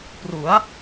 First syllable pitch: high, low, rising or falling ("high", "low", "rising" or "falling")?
rising